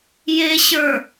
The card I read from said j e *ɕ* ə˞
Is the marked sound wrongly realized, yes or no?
no